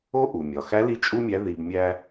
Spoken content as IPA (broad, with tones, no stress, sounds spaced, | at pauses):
o˧˥ ʔ u˩ mʲ ɒ˩ x æ˧˥ l i˧˥ t͡ʃʼ u˥ mʲ æ˧˥ ð i˧ b mʲ æ˥